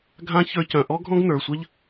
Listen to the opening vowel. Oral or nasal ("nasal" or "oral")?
nasal